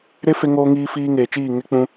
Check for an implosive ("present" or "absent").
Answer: absent